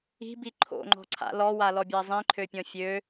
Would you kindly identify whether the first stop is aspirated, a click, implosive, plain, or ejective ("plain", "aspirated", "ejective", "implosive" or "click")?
plain